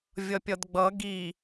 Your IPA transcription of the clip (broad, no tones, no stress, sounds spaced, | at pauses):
vʲ ʌ pʲ ʌ d ɡ͡b ʌ ɡ i